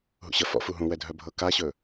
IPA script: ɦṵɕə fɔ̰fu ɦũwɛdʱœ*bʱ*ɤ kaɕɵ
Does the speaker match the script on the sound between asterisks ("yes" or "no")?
yes